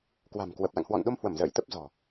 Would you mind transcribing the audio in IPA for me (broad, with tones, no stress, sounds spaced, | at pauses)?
k w a̤˨˩ m k w ə˨˩ p̚ l a̰˧˨ ŋ h w ɔ̰˧˨ n ɗ o˧ m h w ə˧˩ m z ə̰ː˧˨ j t̪ ə˦˥ p̚ z ɔ̤˨˩